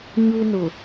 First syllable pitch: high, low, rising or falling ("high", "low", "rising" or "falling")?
high